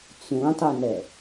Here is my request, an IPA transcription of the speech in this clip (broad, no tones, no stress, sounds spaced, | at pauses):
t͡s ũ tˤ ʊ n ɛ